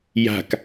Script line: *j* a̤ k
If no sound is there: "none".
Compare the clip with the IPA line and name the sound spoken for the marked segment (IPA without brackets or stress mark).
j